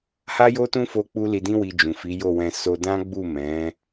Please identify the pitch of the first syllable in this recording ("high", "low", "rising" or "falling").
high